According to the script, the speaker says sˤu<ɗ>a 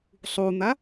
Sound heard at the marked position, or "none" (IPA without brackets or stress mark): n̪